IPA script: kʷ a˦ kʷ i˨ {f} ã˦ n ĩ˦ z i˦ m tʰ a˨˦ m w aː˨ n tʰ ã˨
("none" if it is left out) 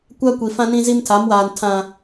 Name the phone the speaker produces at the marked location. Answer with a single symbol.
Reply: f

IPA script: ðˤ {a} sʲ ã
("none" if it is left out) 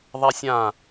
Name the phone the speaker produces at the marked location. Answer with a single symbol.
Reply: a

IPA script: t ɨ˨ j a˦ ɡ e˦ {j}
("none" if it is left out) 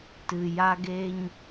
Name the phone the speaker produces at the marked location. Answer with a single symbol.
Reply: ɲ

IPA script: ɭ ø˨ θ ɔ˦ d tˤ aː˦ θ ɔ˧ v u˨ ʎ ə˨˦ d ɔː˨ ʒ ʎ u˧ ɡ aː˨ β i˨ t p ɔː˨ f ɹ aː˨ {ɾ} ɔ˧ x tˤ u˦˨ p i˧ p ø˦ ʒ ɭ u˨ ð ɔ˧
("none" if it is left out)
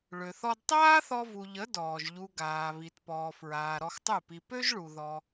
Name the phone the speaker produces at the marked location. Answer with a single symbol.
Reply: ɾ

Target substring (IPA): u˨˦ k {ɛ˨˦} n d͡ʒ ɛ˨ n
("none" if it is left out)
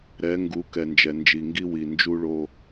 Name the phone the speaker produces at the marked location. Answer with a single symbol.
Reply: ɛ˨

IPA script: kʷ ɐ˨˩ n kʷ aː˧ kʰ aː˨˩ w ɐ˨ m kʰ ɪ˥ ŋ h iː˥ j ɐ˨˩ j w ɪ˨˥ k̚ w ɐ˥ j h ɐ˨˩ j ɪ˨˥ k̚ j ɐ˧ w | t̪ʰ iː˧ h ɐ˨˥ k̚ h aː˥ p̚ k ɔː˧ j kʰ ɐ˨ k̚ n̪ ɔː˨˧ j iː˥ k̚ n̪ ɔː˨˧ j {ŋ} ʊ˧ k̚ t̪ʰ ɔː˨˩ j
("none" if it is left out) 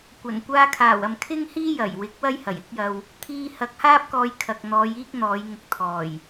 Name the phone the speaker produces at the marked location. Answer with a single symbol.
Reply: ŋ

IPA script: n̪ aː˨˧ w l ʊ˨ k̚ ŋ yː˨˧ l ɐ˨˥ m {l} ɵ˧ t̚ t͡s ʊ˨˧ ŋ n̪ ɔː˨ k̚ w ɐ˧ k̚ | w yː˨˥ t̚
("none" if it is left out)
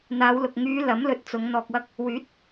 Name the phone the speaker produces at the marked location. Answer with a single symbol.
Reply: l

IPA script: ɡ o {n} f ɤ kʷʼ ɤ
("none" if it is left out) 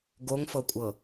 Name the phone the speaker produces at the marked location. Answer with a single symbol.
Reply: ŋ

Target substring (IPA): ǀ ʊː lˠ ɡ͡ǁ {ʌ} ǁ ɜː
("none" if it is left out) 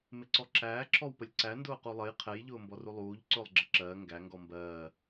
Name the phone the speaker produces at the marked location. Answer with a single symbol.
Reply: ʌ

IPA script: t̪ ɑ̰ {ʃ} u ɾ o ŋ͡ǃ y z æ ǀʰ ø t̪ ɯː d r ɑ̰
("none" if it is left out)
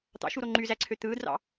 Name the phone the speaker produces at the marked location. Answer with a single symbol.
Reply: ʃ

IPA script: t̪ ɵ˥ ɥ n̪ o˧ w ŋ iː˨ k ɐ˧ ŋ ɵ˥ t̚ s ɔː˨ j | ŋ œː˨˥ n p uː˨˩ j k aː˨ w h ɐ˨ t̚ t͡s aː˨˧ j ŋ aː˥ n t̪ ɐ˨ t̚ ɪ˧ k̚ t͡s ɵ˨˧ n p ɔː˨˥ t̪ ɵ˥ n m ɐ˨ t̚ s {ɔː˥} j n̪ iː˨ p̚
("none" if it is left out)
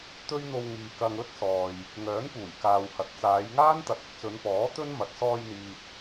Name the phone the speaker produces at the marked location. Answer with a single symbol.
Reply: ɔː˧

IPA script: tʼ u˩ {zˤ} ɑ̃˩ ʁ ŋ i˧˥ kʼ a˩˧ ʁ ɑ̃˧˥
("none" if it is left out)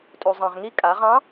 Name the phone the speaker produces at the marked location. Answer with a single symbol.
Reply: zˤ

